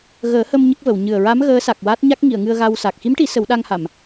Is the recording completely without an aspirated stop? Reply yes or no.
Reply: yes